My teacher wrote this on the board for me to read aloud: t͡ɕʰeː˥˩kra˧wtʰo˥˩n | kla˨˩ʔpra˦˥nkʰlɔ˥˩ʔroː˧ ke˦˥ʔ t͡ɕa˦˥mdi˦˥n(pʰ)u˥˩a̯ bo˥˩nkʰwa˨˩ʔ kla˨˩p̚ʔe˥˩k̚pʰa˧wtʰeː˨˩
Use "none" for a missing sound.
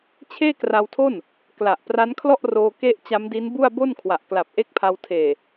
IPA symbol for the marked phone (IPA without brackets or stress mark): b